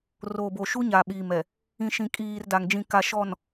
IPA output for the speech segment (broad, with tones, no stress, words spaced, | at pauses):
roː˨bo˨ʃu˦ɲa˨ ɓiː˨mɛ˨ | ĩ˨ʃĩ˨kʼiː˨r da˨ŋd͡ʒĩ˨ka˨ ʃɔ˨n